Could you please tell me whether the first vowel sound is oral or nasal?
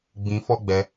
nasal